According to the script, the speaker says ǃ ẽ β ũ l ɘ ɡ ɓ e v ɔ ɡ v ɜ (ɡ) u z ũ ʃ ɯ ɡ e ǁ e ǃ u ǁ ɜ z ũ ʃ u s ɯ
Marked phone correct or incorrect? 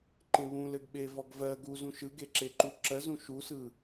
correct